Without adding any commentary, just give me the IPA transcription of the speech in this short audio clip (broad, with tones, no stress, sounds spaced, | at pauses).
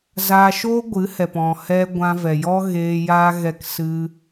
z aː˧ ʃ oː˦ ɡʷ ɨ˨˦ h ɛ˨ p ɔ̃˨ h ɛ˧ ɡʷ ã˧ v ɛ˨ j ɔ˦ ɣ eː˧ j aː˧ ɣ ɛ˧ k s ɨ˧